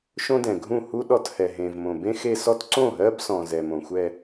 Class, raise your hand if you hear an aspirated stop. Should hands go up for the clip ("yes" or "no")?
no